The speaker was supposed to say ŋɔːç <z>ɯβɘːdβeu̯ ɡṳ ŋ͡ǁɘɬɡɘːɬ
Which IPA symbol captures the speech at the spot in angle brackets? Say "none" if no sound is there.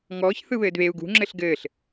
θ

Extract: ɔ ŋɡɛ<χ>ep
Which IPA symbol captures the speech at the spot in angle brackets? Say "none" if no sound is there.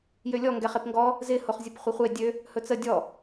χ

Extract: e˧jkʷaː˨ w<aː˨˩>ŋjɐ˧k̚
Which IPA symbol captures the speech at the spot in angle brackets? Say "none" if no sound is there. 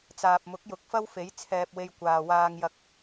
aː˧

